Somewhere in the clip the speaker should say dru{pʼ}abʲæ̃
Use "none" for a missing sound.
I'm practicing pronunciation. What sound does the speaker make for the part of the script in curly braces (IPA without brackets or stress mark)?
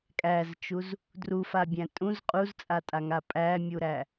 f